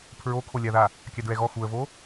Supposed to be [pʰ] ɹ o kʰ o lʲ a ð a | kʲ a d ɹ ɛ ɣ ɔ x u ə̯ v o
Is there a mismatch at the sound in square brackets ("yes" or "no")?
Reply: no